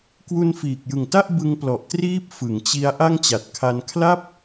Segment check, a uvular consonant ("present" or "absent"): absent